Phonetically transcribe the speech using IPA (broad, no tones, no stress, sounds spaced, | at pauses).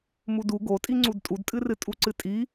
m u d u ɡ o tʼ i ŋ͡ǀ u d tʼ u d tʼ ɨ r ɨ tʼ u ǀ ɨ tʼ i